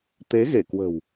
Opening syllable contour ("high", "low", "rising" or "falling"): rising